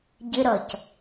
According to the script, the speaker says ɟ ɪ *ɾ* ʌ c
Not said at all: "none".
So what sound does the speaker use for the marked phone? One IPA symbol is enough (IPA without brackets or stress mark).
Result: ɾ